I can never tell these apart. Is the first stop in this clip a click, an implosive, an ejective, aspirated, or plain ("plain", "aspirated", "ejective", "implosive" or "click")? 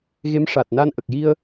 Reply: plain